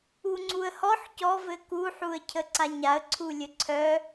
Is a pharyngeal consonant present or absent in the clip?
present